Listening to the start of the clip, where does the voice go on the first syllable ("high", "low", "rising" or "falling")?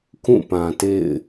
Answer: falling